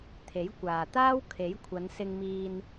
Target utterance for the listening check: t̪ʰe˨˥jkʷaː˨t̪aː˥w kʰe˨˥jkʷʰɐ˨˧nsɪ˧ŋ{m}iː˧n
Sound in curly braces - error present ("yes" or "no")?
no